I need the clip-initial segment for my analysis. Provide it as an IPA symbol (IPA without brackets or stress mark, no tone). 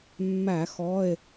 mː